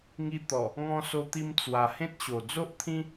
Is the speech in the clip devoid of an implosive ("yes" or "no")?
yes